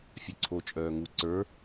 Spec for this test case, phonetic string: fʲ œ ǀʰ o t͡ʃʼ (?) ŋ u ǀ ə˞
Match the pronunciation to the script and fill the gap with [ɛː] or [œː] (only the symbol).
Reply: œː